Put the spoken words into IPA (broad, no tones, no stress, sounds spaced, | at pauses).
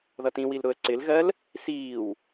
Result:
ð ʌ t ĩ w i l ɾ ʊ ə̯ ǀ ɪ l ɣ ɜ l | s iː w